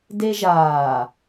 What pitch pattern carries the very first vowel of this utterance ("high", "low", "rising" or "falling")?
high